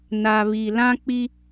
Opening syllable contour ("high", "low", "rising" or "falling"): low